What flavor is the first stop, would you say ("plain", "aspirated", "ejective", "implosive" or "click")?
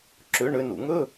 click